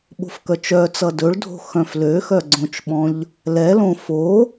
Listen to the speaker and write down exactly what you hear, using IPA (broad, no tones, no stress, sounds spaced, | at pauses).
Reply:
ɓ o̤ f k œ t͡ʃ œ t͡s ʌ d ɵ ɭ dʱ o̤ x œ̃ f l ø x œ ɡ͡ǀ õ t͡ʃ ɓ ɔ̃ ʎ | l ɛ l õ f o